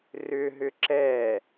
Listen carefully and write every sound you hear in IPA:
r ʏ ɦ ʏ ǁ ɛ

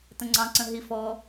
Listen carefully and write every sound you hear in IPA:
t ə̃ ŋ͡ǀ ɑ̃ ǀ ə̃ ɦ i f ɔ

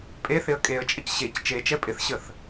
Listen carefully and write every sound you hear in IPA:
pʼ e θ ɪ ə̯ kʼ e ə̯ t͡ʃʼ ə c ɕ e c t͡ʃ e t͡ʃ ɛ pʼ ɪ θ ɕ ə θ

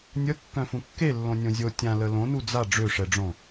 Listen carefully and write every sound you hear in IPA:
nʲ ə kː œ̃ f ũ kː e lː õ nʲ õ zʲ o tʲ ã l ə l õ n u d͡z a ɖ͡ʐ ø ʂ ɛ ɖ͡ʐ õ

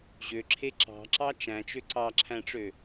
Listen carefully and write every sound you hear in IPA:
ʑ ø ǁʰ e ǁ ɑ̤ ǁ ɑ t͡ʃ æ̃ t͡ʃ ø ǀ ɑ ǁʰ æ̃ ʈ͡ʂ ø

